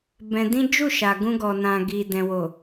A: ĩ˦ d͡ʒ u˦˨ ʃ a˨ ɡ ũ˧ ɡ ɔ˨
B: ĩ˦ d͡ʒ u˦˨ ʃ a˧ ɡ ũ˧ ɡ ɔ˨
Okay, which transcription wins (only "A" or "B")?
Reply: A